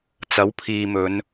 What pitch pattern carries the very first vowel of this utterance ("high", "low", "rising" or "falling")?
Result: rising